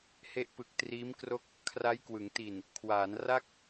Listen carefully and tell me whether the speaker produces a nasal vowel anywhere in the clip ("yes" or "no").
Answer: no